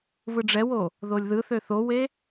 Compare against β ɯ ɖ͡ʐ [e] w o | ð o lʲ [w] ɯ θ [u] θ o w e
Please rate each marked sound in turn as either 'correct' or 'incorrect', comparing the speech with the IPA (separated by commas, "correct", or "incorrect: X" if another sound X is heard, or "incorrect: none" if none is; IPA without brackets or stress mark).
incorrect: ɛ, incorrect: ð, incorrect: ø